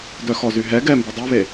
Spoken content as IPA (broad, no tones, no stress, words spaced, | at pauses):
dœxɔzyɦɛ ɡɛmbu dˤʉβe